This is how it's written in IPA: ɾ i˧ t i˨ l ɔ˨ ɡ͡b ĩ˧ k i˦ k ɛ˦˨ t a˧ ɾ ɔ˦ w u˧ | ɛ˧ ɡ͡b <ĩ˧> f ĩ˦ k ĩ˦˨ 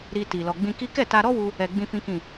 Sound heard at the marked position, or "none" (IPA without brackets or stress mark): ĩ˦